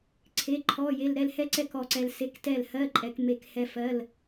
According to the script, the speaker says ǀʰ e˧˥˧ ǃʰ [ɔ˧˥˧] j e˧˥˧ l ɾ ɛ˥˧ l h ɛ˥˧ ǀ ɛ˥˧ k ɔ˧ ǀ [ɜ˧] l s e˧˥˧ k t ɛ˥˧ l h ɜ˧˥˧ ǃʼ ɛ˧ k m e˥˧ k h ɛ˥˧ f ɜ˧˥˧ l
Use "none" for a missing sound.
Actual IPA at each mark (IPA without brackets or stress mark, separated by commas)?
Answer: ɔ˧˥˧, ɛ˧